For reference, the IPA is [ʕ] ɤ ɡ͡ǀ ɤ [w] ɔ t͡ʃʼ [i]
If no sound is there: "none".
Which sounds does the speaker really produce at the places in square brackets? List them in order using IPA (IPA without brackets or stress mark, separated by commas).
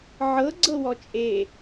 ʕ, w, e